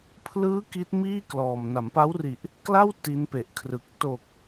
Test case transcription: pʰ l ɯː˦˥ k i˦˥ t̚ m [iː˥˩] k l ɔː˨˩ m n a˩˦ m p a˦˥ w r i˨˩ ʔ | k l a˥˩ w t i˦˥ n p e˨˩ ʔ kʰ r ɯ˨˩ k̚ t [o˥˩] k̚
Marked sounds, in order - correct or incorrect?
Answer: correct, incorrect: o˨˩

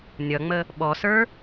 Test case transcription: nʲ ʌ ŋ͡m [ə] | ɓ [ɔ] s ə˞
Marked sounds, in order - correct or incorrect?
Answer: correct, correct

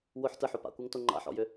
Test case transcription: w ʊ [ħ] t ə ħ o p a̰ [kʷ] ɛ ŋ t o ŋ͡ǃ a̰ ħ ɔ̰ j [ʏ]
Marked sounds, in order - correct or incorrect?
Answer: correct, correct, correct

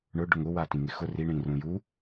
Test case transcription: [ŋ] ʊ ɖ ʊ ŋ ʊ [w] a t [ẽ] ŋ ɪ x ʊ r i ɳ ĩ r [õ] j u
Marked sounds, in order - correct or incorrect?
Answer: incorrect: ɳ, correct, incorrect: ĩ, incorrect: ũ

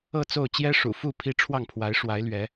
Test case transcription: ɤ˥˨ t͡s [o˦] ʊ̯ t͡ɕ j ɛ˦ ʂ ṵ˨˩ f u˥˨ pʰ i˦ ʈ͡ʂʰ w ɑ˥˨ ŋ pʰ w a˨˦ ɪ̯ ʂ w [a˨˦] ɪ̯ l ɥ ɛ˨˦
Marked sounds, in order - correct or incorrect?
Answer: incorrect: o˥˨, correct

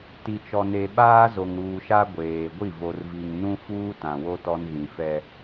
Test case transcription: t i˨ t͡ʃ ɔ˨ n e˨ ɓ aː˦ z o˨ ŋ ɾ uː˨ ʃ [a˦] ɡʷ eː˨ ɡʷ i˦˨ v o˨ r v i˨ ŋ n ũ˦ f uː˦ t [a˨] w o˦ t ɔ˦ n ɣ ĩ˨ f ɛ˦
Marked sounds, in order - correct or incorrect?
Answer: correct, incorrect: ã˨

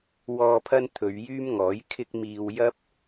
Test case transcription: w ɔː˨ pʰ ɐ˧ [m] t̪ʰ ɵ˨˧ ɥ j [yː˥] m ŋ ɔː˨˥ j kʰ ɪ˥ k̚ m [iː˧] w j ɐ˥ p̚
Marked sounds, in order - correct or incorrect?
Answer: incorrect: n, correct, correct

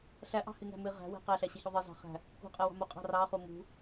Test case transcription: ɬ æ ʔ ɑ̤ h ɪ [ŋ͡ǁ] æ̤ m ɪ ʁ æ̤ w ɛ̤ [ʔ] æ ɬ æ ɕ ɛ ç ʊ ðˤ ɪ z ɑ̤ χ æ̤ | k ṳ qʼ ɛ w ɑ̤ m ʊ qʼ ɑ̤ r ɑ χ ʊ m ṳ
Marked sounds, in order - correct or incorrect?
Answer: incorrect: ŋ, incorrect: q

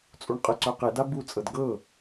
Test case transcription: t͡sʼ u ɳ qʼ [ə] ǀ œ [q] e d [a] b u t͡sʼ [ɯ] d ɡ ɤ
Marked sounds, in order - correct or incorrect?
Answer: correct, correct, correct, incorrect: ɤ

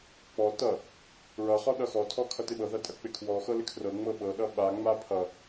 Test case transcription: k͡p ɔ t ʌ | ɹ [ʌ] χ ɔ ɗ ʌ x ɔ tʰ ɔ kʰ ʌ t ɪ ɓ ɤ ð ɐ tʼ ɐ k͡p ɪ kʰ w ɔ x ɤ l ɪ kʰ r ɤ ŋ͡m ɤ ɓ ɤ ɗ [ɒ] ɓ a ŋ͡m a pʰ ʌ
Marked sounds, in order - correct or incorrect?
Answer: correct, incorrect: ʌ

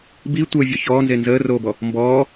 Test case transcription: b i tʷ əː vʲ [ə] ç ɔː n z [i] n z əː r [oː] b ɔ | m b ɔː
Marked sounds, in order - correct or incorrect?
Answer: incorrect: ɔ, incorrect: e, correct

